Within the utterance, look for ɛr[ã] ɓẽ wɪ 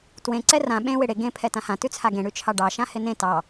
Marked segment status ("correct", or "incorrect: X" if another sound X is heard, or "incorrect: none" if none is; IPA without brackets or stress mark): correct